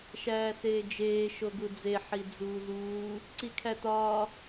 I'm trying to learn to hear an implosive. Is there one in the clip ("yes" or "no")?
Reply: no